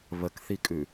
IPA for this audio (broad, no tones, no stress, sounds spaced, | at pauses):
β ə k θ i kʼ ʉ